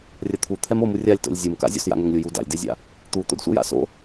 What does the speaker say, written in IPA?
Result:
rʲɐt̪ʰu t̪ʰɛmomu rʲalʲto̰lʲ zʲumka̰zʲo̰s ja̰ŋɛŋlʲuju da̰lʲdezʲa̰ | t̪u t̪o̰dsʷɛ̰ja̰so̰

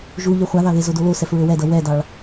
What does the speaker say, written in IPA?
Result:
ʒuʎe χʷaðɑðe zodolo sɛfɹøwɛdʌ wɛdɑɭ

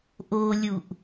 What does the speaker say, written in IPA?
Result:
ʔolʲuʔ

